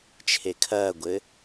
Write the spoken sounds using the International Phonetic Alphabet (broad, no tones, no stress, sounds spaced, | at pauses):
t͡ʃʰ e kʰ ɐː ɡʷ ɘ